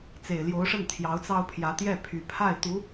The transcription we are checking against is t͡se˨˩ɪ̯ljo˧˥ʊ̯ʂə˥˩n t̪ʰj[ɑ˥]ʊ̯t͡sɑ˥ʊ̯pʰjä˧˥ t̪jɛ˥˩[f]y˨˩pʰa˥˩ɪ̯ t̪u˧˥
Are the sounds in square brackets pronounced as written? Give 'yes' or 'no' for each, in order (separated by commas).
no, no